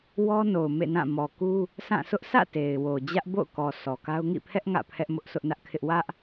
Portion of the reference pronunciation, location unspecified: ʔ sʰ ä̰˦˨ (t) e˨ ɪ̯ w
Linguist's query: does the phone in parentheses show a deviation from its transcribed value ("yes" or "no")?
no